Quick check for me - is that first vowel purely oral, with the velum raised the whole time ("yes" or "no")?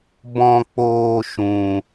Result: no